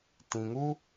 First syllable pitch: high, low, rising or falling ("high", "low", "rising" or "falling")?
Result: low